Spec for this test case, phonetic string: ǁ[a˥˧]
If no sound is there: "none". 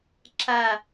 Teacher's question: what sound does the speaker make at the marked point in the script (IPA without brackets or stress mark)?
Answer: a˥˧